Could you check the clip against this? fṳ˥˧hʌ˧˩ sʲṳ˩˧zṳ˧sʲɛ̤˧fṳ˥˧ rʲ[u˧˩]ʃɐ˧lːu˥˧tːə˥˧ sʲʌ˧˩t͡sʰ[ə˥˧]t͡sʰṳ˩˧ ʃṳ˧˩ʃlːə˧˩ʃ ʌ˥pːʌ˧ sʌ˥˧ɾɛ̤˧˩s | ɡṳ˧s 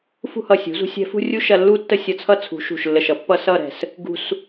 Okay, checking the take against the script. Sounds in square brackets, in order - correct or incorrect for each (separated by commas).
incorrect, incorrect